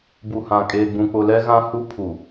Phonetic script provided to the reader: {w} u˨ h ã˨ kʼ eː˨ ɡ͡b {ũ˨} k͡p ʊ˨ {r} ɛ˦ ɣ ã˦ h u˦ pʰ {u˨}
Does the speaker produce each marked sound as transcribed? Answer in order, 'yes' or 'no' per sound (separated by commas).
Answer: no, yes, no, yes